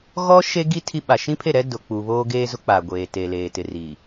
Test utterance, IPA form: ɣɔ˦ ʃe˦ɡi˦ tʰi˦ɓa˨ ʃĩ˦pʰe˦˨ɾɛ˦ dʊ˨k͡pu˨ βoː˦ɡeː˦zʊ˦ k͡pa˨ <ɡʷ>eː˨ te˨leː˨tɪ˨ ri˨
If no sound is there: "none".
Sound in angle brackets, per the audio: ɡʷ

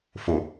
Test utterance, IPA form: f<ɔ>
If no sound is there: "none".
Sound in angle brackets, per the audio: o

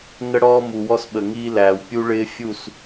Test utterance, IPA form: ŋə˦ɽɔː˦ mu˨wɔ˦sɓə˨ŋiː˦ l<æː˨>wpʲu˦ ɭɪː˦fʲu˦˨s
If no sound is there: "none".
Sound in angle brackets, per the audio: æː˨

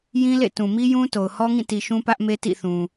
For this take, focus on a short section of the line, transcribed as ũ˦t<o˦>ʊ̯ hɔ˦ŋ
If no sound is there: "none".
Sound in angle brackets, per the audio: o˨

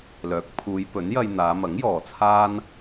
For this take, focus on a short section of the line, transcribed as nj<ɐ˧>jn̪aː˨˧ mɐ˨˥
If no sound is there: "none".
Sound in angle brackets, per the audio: ɐ˧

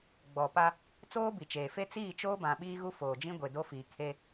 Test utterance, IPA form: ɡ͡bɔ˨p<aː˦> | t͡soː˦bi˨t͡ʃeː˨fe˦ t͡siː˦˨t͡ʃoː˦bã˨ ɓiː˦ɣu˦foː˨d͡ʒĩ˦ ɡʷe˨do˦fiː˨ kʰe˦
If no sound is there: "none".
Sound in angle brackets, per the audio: a˦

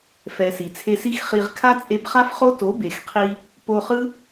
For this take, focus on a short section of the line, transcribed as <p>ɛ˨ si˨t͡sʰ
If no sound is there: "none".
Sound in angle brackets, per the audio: f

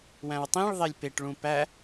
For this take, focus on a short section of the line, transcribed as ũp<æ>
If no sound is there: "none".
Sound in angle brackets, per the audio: æ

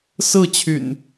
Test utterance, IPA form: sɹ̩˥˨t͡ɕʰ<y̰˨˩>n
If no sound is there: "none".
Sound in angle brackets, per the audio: y̰˨˩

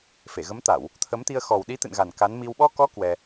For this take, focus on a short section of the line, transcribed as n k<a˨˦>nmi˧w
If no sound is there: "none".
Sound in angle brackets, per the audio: a˨˦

